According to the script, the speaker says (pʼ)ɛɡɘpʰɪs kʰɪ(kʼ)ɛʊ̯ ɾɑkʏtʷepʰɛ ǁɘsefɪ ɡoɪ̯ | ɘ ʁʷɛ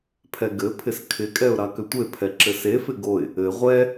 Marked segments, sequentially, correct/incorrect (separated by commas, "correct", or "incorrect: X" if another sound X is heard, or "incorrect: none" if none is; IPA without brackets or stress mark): incorrect: pʰ, correct